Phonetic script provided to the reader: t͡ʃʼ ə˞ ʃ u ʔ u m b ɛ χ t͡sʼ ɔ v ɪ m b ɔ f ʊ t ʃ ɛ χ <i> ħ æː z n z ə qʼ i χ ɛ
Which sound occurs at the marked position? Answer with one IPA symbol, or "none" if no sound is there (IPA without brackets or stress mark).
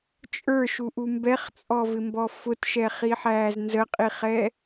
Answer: i